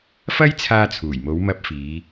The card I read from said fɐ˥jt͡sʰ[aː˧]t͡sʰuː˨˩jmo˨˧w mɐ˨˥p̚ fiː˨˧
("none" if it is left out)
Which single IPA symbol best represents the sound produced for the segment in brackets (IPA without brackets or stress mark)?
aː˧